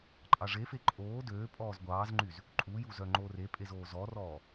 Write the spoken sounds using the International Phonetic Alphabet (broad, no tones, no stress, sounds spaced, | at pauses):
ǃʼ ɑ ʐ e f e ǃʼ oː d øː pʼ ɔː z ɡʷ ɑː z ŋ͡ǃ y z | ǃʼ u j u z œ ŋ͡ǃ oː r e pʼ e z oː z ɔ r ɔː